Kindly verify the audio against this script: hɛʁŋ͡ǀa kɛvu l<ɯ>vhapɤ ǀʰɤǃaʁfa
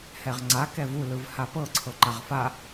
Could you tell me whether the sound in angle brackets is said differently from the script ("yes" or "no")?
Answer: no